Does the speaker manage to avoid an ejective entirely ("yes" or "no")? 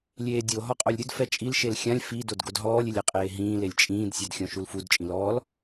no